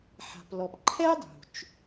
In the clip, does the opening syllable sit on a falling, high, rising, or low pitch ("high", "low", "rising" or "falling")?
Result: low